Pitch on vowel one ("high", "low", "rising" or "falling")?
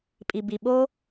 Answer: low